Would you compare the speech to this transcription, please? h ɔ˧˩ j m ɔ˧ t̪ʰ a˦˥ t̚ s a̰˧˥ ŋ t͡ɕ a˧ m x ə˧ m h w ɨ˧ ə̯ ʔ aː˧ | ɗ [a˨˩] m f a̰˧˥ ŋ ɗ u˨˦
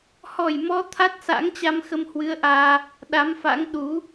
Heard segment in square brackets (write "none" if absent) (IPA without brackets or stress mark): a˨˦